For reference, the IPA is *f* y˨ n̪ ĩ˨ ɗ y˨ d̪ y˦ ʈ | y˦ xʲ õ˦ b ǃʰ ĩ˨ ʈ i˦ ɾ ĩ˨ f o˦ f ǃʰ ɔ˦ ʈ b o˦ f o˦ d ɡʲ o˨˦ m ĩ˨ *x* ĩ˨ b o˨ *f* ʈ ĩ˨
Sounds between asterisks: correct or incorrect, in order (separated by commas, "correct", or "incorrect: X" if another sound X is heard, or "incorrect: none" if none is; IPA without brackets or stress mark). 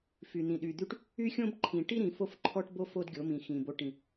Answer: correct, correct, incorrect: none